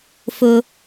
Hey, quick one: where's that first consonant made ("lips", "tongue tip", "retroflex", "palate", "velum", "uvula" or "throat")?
lips